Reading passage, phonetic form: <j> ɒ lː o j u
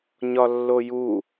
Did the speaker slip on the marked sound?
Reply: yes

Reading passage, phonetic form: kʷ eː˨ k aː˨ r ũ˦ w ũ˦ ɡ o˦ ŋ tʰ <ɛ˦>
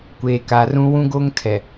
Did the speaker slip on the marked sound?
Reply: yes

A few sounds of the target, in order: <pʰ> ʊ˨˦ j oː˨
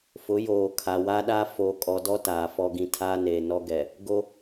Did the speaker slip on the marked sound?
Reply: yes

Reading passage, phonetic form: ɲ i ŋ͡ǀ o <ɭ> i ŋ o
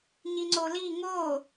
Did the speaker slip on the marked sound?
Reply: yes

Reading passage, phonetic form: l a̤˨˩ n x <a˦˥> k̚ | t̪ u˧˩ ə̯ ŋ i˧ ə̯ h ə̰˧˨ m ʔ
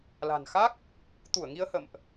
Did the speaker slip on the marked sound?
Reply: no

